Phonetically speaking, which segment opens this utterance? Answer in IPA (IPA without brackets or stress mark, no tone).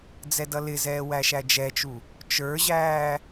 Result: d͡z